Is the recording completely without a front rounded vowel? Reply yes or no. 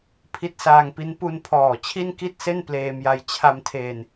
yes